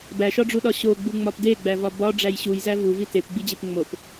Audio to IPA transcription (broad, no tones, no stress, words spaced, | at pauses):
bæʃɒɖ͡ʐuɗɒ ɕoɡ͡buŋ͡mɒp deɡ͡bævɒ bɒɖ͡ʐæj ɕujzæ vuvi tepɡ͡bid͡ʑep ŋ͡mop